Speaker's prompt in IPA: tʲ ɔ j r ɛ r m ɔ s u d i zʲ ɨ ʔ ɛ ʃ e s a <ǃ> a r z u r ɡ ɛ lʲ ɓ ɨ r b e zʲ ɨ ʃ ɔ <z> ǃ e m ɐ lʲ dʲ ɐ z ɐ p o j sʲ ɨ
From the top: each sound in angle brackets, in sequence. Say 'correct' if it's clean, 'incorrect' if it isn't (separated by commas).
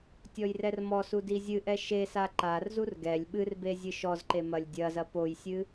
correct, correct